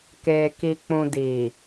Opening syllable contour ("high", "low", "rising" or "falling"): low